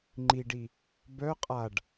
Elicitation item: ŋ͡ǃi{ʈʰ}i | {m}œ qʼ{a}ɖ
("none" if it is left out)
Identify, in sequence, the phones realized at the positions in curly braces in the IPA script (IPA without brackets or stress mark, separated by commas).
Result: ɖ, b, a